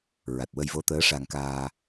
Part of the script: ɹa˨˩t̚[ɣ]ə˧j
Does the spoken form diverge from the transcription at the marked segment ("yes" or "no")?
yes